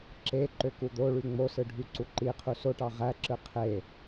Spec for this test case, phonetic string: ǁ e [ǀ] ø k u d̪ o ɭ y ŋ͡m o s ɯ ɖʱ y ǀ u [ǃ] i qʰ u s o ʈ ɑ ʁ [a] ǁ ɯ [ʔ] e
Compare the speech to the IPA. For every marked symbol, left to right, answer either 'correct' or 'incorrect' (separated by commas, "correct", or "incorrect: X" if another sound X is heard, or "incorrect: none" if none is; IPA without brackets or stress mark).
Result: incorrect: ǃ, correct, incorrect: æ, incorrect: qʰ